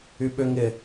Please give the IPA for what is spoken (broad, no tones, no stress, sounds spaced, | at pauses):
y ɓ ʏ ŋ ɪ